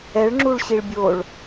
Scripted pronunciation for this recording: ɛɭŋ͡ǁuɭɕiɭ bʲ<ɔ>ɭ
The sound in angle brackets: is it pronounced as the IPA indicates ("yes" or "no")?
no